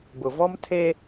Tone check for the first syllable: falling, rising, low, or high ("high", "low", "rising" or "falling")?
low